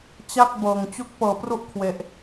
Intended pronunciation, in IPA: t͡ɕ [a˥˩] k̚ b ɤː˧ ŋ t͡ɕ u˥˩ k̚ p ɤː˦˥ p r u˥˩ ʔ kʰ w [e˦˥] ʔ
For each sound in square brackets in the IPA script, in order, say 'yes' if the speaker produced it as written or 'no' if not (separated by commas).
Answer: yes, yes